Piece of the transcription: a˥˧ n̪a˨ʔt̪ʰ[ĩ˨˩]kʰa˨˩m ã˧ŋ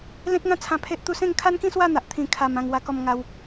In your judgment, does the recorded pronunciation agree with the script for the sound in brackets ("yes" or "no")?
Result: yes